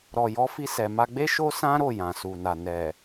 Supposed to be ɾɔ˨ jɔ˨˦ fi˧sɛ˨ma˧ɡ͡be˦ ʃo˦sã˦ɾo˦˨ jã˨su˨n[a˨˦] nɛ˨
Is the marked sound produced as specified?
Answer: no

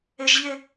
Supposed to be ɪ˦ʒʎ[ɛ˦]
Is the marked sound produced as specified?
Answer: no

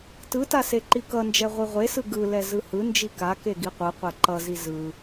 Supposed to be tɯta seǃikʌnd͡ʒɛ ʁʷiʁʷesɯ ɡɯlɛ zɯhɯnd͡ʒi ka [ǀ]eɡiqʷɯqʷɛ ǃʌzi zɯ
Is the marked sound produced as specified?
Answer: no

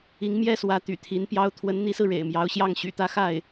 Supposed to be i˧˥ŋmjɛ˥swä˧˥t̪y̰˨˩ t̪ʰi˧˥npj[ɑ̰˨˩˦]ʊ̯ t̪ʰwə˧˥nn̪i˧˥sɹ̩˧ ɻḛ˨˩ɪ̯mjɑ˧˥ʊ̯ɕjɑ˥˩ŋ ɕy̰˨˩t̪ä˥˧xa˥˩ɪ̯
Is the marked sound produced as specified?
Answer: no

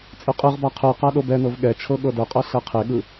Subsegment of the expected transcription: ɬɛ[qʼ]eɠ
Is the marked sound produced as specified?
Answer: no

